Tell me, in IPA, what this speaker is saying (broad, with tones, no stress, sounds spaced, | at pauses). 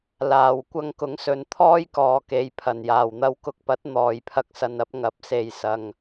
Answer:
l aː˨ w kʷ ɐ˧ ŋ k ʊ˨˥ ŋ s ɵ˨ n t̪ʰ ɔː˥ j k ɔː˨ k e˨ j pʰ ɐ˨˩ n j aː˨˩ w n̪ ɐ˧ w k ʊ˧ k̚ p ɐ˨˥ t̚ n̪ ɔː˨ j pʰ ɐ˧ k̚ s ɐ˨ n ɐ˧ p̚ ŋ ɐ˨˥ p̚ s e˨ j s ɐ˨ ŋ